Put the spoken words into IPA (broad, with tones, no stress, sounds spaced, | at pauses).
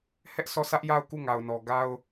h ɛ˦ ʔ s ɔ˦˨ sʰ ä˦ ʔ j a˦˨ ʊ̯ k u˦˨ ŋ a˨ ʊ̯ n ɔ˨ ɡ a˦ ʊ̯